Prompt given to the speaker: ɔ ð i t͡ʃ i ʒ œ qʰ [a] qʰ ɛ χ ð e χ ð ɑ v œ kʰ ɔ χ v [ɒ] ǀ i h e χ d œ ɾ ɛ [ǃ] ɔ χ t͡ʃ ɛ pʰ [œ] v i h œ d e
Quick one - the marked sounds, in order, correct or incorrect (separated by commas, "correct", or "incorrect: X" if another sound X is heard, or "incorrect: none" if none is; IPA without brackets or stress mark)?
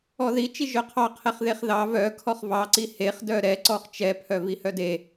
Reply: incorrect: ɑ, incorrect: ɑ, incorrect: ǀ, correct